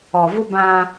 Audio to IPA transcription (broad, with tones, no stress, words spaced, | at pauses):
ɔ˨vʊ˦ bã˦